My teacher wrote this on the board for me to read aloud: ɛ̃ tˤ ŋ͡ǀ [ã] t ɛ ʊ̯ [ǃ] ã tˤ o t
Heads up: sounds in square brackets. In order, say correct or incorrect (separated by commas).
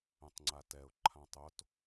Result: incorrect, incorrect